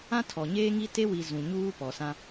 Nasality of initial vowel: nasal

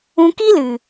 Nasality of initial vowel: nasal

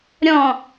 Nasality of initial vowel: nasal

